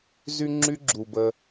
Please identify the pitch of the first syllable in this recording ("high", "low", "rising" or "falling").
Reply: high